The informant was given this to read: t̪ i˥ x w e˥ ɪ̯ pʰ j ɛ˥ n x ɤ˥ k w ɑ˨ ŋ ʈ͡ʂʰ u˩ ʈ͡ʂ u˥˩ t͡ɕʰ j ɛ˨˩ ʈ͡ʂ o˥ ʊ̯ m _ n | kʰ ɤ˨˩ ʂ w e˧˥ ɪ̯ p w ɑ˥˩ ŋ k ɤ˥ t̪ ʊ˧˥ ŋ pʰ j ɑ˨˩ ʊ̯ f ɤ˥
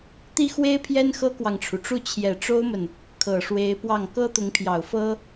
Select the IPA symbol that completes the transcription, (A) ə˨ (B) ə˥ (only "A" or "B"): A